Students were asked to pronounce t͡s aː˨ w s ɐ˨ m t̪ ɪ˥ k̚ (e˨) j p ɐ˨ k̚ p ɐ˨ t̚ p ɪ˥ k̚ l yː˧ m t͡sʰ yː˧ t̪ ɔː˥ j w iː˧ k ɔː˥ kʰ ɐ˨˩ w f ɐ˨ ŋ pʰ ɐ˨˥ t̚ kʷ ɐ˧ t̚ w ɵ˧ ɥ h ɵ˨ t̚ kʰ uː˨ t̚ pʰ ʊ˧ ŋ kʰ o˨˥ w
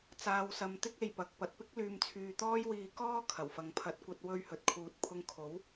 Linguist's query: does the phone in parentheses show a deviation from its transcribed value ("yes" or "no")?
yes